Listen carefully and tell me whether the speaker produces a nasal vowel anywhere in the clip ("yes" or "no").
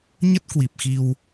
no